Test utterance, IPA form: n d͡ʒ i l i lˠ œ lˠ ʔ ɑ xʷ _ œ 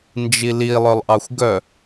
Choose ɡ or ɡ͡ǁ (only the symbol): ɡ